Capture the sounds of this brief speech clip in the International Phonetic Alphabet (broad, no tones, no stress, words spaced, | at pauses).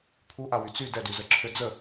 pʰuʔawy t͡sy dɛdyzəǁʰø d͡zə